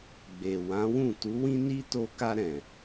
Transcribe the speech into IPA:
ɡ͡b e˨ w ã˨˦ w ũ˦˨ t u˨˦ w ĩ˦ n i˦ t o˧ k a˧ ɾ ɛ̃˨

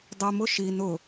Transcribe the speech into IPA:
dˤ i m ʊ ʃ i n ʊ

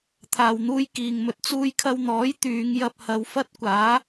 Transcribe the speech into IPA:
t̪ʰ aː˨ w n̪ uː˥ j k iː˨ ŋ m ɵ˧ t̚ t͡s uː˧ j kʰ ɐ˧ w n̪ ɔː˨˥ j t̪ yː˨˧ ŋ j ɐ˧ p̚ h ɐ˨˧ w f ɐ˥ t̚ kʷ aː˨˥

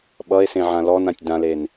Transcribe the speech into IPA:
ɓ ʌ e̯ s ẽ ʕ ã l ɔ n ã tʲ d ã l e n

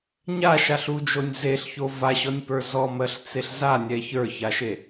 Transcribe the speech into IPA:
ɲ a ʃ a ɬ u d͡ʒ o nʲ z e ɬ ç o v a ɕ ɔ nʲ p ə˞ z ɔ m ɜ ɬ t͡s e ɬ z a nʲ ɛ ç ə˞ ç a ʃ e

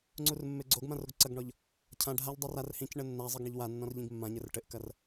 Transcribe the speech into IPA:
ŋ͡ǀ u r mː e ɡ͡ǀ o ɡ m ã r o ɡ ǀ ɐ ɡ ɳ ɔ ʎ | cʰ ã ɖʱ a ʎ dˤ ɛ r a r h ĩ c ɳ ɘ nː a zˤ ɘ ɡ ɳ ɐ ʎ w a nː ɔ̃ r ʎ ĩ ɡ mː ã ɲ ɘ r ʈ ɘ ʔ k ɐ r

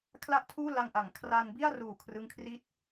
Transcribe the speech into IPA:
kʰ l a˥˩ ʔ tʰ uː˥˩ l a˧ ŋ ʔ a˩˦ ŋ kʰ r a˧ n b i˥˩ a̯ r uː˨˩ kʰ r ɯ˦˥ ŋ kʰ r i˥˩ t̚

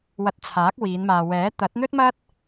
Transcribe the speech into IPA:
w ɐ˧ t̚ t͡sʰ aː˨˥ k̚ w iː˨˧ n m aː˨ w ɛː˨˥ t̪ ɐ˨˥ t̚ n̪ ɵ˥ t̚ m ɐ˥ t̚

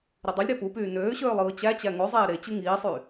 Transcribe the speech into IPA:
ɾ i dˤ y lʲ ɾ æ p u p yː n øː ɕ øː lˠ ɯː t͡ɕ æ t͡ɕ æ ŋ o zˤ eː ɾ e t͡ɕ ɯ ŋ iː sˤ y

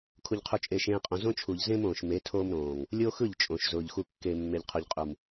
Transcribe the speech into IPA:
kʰ u˨ ʎ qʰ u˨ t͡ʃʼ eː˨ ʃ ẽː˨ qʼ õ˨ z õ˦ t͡ʃʰ u˨ ʎ z ẽ˦ m õː˨ ʃ m e˨˦ tʰ oː˦ m ɾ õː˨ ŋ | lʲ oː˦ x ɯ˦˨ ʎ t͡ʃʼ õ˨ ʃ z ʊː˨ ʎ x u˨ kː e˨ mː e˨ ʎ qʰ u˨ ʎ qʼ u˨ m

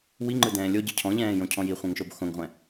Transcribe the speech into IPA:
w i ŋ͡ǃ ɯ d ɛ̃ː lʲ o ɟ ɯ cʰ ɔ̃ ʎ ɛ̃ː j õ cʰ ɔ̃ j i χʷ ɛ̃ ŋ ʃ o b x õ ŋ ʁʷ ɛ̃

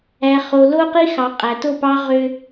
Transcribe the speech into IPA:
æ˨ χ o˨ l o˦ q i˦ x ɑ˨ qʼ æ˨ t o˦˨ p ɑ˦ ʁ ø˦

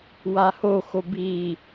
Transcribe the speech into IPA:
w a h o x o b i

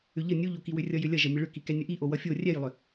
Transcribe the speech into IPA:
ʏ ʎ ə nʲ u ʎ o k i w ʏ rʲ ʌ j ʏ lʲ ʌ ʒ ʌ mʲ ɘ ɭ ʏ k i k ɛ nʲ ə ʔ i ʔ o w ʌ fʲ o rʲ ɛ j lˠ ʏ

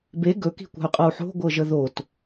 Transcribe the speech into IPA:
b e ɡ ɵ k i̤ kʷ a̤ y̯ qʼ ɤ u̯ ħ o̤ ɡʷ ɤ ʒ ə ð o t

